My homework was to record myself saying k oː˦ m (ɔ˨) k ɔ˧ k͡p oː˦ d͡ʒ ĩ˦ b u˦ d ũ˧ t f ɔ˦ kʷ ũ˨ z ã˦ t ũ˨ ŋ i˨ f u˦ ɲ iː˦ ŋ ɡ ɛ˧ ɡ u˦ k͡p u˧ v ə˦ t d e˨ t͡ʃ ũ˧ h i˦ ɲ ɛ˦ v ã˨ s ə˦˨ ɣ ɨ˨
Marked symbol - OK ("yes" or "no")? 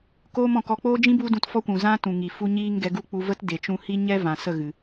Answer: no